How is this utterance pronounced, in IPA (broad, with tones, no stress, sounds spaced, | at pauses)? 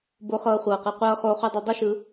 b o˧ χ ɤː˧ χʷ ɤː˨ q ɯ˨ qʷ ɤː˧ χ oː˧ χ u˧ dˤ e˧ dˤ o˦ ʃ ɯ˧